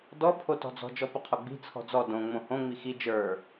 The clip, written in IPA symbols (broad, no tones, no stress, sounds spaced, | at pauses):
d ɔ pʰ o t ɔ̤ d͡z ɔ̤ d͡ʒ ɔ p ə qʰ o ɡ͡b i̤ t͡sʰ ɔ̤ d͡z ɔ d õ ŋ͡m õ h õ ŋ͡m i x i d͡ʒ ə˞